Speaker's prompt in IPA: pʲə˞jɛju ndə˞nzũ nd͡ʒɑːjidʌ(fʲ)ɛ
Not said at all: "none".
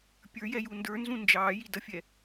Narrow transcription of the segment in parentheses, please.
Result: fʲ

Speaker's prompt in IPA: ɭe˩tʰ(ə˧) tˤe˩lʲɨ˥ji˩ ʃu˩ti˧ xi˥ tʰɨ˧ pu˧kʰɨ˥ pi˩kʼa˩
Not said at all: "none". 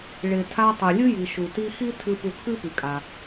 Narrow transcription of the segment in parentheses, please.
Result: a˧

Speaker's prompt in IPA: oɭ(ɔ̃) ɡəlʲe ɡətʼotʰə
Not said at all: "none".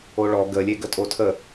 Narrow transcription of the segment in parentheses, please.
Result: ɔ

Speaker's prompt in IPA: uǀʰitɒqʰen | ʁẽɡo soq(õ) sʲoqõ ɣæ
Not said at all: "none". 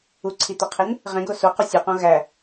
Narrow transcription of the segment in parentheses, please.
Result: o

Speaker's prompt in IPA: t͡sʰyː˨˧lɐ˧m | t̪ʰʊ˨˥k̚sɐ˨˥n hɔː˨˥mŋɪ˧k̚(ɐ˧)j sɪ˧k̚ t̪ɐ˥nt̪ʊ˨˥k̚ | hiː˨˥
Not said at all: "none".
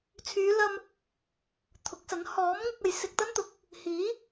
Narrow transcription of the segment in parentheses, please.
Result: ɐ˨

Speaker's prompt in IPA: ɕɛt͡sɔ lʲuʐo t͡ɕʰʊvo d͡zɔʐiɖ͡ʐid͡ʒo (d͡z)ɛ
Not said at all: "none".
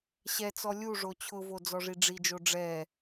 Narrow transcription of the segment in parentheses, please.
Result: ɖ͡ʐ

